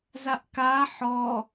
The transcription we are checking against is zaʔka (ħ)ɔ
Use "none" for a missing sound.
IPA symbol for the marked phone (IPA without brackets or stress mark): ħ